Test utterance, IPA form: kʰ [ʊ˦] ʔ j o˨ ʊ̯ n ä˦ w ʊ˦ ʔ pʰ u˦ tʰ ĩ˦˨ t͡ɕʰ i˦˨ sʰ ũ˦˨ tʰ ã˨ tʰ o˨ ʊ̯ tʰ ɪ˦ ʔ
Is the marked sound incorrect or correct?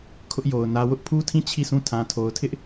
correct